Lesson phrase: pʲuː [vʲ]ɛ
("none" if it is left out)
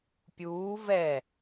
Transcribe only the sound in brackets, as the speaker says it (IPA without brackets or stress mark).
v